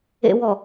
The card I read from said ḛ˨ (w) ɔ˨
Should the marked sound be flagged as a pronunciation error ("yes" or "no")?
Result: no